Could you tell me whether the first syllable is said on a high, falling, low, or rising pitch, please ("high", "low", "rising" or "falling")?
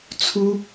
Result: high